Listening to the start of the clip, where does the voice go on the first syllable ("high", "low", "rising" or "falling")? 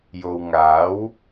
low